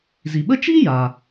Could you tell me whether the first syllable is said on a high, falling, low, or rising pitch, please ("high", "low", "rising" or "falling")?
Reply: low